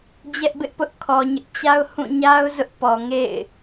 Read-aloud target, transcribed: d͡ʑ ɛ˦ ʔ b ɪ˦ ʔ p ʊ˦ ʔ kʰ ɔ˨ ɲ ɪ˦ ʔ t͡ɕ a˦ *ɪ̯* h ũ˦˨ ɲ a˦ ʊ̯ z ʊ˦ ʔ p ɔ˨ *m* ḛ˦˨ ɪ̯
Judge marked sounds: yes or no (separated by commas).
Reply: no, no